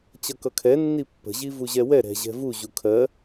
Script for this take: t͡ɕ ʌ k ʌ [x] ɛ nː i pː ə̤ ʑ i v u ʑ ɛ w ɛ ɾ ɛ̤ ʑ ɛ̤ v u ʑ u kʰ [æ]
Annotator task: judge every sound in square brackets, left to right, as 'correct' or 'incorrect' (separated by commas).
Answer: incorrect, incorrect